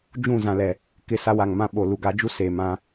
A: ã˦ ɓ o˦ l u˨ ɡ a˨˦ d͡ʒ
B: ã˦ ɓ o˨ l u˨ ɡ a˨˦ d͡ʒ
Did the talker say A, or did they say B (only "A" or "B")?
B